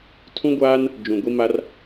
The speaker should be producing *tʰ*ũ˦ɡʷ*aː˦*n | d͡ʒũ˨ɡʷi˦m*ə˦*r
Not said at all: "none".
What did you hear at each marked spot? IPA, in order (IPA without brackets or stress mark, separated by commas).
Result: tʰ, aː˦, a˦